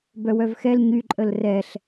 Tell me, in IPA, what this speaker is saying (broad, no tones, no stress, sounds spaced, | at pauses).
b œ w œ v x ɛ l ɲ y ǃʼ ə l r ɛ ɬ